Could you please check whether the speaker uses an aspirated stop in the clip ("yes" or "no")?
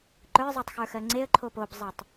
yes